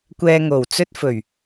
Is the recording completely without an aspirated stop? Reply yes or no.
yes